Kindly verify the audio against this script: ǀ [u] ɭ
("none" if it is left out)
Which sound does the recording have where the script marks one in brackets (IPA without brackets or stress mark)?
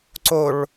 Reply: o